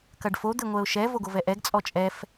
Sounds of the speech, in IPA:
k ɐ ɖ f o d̪ ɘ ŋʷ ɛ ʊ̯ ʃ ɛ v o ɡ o v ɛ ʔ ɛ ɡ t͡sʼ ɔ t͡ʃʼ ɛ f

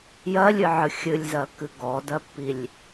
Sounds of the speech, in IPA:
j ɜ lʲ ɨ ʕ ɨ xʲ ɨ lʲ z ɜ kː ɨ ɡ ɔ d ɜ pː i lʲ

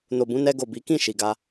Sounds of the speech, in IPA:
n o˨ b ũ˧ n ɛ˧ ɡ o˨ b i˨˦ k ĩ˦˨ ʃ i˨ ɡ a˧

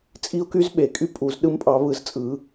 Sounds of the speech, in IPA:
t͡sʼ i˦˥ ʊ̯ k y˦˥ z ɓ e˨˩˦ kʼ y˦˥ pʼ u˨˩˦ z ɗ ɯ˦˥ m pʼ ɑ˨˦ β ɯ˨˩˦ z t͡sʼ ɯ˨˩˦

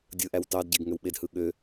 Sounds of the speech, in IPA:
dʲ ɯ ʔ æ w t ɑ d ɟ e ɡ ŋ ø w ɓ e d h ɯ ɠ ø

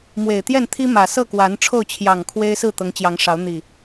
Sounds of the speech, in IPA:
m w e˨˩ ɪ̯ t̪ j ɛ˥˨ n t̪ʰ i˦ m ä˨˩ s ɤ˥˨ k w a˨˦ n ʈ͡ʂʰ o˥˨ ʊ̯ t͡ɕʰ j ɑ˨˩ ŋ kʰ w e˦ ɪ̯ s ɹ̩˥˨ t̪ ɤ˨˦ ŋ t͡ɕ j ɑ˨˦ ŋ ʂ ɑ˨˦ ʊ̯ n̪ i˨˩

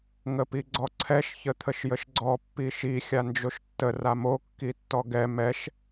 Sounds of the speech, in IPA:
ŋ ə p i ɡ͡ǀ ɔ ǀʰ ɛ ʃ ç ə t̪ʰ ə ʃ j ə ʃ ɡ͡ǀ ɔ pː i ʃ i xʲ a n d͡ʒ o ʃ tː ə r a m o kː i tː ɔ ɡ ɛ m ɛ ʃ

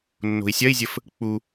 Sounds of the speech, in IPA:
nː o̤ i̯ sʲ ɐ i̯ zʲ ə f | k͡p u

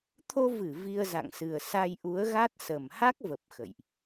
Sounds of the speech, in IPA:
t̪ʰ o˧ v ɨ˧˩ v i˧ ə̯ z a̰˧˨ ŋ s ɨ˨˩ ə̯ s a˧ j ʔ u˨˦ ə̯ ɣ a˦˥ t̚ s ə˨˩ m h a˦˥ k̚ v ə˨˩ p̚ x ə̰˧˨ j ʔ

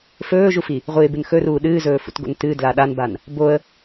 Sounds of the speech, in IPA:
f ɵː ʒ u f i | ʁʷ ɨ ɪ̯ b ɨ n x ɵ r uː ɗ ɨː z ɵː f ṵ t ɡ o̰ n t ɨ d l a ɗ a n b a n | b o ə̯

